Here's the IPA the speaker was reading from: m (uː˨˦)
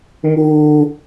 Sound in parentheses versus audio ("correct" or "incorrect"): incorrect